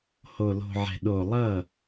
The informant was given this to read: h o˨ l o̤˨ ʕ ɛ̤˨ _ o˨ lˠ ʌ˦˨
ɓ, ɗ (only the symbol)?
ɗ